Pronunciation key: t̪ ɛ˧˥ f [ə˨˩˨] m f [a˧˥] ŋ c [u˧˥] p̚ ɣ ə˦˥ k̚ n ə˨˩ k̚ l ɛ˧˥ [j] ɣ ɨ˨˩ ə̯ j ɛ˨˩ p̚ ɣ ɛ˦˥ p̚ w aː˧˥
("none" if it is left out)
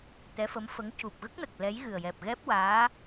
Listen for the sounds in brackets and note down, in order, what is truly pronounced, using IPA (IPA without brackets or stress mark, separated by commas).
ə˧˥, ə˧˥, u˨˩, j